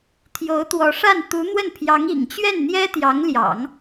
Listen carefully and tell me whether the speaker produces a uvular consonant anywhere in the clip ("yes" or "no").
no